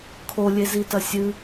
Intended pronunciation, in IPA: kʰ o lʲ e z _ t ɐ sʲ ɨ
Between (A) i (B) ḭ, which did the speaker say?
A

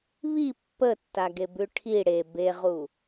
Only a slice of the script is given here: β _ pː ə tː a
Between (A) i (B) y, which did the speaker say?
A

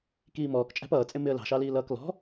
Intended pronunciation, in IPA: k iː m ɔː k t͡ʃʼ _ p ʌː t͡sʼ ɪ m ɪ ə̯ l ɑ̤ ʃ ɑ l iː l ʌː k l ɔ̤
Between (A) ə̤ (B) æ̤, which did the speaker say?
B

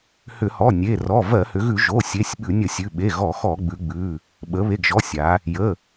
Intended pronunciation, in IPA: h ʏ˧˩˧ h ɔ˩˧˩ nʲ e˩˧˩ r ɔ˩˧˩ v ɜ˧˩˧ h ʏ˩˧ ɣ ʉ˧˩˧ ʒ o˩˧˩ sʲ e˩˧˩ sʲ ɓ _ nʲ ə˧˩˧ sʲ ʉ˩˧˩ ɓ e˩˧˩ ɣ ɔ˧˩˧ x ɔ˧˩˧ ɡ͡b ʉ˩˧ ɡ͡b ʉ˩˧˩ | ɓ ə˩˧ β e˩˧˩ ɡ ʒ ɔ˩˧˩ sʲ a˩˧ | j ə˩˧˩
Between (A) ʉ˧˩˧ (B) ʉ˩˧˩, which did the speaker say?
A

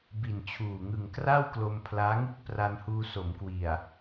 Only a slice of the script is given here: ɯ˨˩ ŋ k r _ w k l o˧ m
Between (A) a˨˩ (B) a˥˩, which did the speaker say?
B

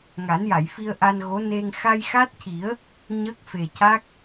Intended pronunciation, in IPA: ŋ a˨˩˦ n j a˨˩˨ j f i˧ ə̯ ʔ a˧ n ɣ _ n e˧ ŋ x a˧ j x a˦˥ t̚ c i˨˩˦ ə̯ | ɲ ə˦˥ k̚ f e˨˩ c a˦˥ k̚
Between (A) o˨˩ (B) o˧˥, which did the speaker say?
B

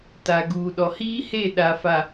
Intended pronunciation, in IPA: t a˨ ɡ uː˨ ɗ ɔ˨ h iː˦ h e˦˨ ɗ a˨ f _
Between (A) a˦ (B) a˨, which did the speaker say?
B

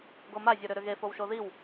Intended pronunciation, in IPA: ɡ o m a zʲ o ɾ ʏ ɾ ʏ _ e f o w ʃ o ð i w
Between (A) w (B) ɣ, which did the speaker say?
B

